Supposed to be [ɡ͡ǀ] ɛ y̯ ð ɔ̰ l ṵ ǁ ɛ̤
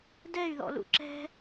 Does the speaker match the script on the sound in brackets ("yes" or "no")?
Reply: no